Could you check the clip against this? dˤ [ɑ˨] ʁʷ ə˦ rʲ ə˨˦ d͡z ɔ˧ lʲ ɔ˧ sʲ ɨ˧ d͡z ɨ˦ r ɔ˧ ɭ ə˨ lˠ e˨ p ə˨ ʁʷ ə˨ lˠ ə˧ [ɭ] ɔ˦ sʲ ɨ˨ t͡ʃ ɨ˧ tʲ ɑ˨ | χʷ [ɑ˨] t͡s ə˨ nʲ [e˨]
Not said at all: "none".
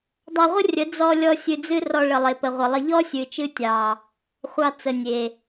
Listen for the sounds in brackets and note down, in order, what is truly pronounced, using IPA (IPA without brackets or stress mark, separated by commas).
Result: ɑ˧, ʎ, ɑ˧, e˨